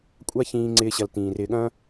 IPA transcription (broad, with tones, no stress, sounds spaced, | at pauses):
kʷʼ a˧ ç ĩː˨ ŋ͡ǀ ɪː˨ ɕ ɐ˨ l t ĩː˨ r ɪː˨ ɠ ɐ̃ː˧